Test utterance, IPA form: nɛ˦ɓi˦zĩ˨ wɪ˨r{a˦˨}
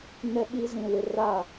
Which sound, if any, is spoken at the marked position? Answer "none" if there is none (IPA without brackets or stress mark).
a˦˨